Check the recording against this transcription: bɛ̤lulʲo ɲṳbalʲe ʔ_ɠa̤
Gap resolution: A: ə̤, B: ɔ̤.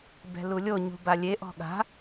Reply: B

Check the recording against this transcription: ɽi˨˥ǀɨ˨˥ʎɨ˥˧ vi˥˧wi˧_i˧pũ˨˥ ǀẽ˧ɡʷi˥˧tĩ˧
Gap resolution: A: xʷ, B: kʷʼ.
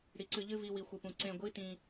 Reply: A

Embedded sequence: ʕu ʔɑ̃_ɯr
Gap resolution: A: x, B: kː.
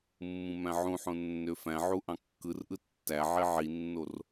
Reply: B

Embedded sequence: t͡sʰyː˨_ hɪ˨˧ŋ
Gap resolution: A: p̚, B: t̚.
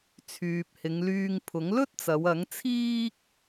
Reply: A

